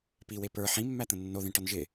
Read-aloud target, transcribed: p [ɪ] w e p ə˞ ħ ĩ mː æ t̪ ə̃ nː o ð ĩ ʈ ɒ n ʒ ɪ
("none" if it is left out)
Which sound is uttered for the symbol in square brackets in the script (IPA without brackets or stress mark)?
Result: i